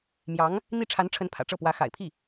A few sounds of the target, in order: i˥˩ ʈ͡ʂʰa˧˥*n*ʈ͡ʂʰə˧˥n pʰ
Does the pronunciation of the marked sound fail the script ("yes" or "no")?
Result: no